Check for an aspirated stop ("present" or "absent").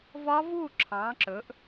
present